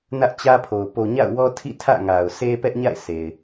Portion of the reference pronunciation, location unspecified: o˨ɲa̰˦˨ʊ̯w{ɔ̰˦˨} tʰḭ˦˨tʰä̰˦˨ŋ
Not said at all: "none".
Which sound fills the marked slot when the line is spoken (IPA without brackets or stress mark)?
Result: ɔ˦